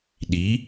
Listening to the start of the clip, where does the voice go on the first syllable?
rising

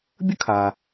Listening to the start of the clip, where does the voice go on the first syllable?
high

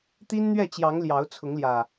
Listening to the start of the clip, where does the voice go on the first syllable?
high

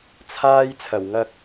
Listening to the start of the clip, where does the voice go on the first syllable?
high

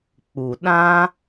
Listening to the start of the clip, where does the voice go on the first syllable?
low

